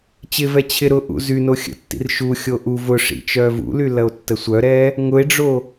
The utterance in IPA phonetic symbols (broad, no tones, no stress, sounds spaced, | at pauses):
t͡ɕ ɪ v ɛ t͡ɕʰ ɪ ɾ ʊ ʔ ṵ z y n o xʲ ə̰ tː ḭ r ʃ u xʲ o ʔ u v ʊ ʂ ḭ t͡ʃ œ v ṵ l y l ɐ o̯ tː ə sʷ œ ɾ ɛ | ŋ ʊ e̯ ɖ͡ʐ o